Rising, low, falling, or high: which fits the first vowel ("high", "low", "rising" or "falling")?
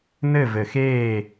falling